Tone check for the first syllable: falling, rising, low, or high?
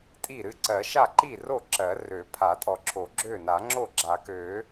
falling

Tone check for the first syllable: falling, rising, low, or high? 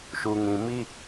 low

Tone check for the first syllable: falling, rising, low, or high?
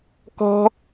high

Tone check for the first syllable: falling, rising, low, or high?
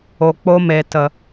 low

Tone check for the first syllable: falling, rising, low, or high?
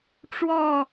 falling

